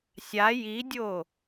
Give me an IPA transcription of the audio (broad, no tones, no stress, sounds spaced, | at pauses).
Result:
sʲ a j i dʲ o